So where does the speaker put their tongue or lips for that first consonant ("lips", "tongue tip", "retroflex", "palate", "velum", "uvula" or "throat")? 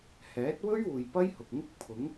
throat